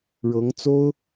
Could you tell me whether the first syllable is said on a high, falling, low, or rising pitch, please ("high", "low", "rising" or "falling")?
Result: rising